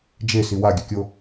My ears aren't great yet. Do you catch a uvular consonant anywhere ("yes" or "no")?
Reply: no